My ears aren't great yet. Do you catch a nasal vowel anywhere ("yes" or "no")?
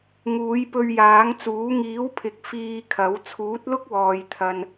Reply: no